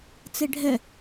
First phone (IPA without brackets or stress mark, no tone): t͡s